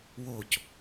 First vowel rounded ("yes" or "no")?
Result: yes